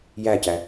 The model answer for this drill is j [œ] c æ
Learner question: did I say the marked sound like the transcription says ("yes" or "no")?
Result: no